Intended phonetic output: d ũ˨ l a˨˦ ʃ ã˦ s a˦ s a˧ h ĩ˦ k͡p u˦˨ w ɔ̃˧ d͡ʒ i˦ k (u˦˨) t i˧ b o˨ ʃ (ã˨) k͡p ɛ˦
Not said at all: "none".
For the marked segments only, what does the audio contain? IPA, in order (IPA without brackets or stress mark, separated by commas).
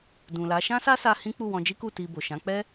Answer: u˦˨, ã˨˦